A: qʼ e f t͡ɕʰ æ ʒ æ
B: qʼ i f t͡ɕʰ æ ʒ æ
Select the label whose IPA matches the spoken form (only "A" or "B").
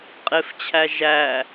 A